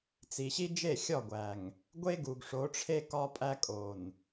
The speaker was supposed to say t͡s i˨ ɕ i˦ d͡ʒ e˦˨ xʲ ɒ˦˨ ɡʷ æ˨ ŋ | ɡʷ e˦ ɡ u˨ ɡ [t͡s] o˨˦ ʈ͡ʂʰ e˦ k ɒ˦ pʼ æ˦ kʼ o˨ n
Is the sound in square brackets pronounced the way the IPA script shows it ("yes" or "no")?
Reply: no